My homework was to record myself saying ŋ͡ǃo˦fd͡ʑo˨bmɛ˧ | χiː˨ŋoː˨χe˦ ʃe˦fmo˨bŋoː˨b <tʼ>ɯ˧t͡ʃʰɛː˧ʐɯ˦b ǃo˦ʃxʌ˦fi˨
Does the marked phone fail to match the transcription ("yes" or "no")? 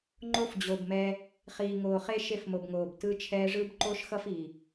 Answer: yes